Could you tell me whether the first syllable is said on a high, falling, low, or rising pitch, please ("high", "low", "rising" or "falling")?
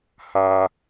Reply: low